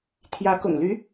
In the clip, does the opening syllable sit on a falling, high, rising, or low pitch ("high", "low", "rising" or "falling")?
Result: rising